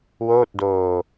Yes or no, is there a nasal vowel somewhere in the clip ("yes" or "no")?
no